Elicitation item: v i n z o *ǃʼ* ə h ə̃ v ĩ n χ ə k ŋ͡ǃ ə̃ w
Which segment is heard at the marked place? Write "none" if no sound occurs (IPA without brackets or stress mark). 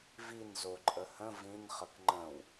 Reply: ǃʼ